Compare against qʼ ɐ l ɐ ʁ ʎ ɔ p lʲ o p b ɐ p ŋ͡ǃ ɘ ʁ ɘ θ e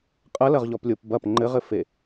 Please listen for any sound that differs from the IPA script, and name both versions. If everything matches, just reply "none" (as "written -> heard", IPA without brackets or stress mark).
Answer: θ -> f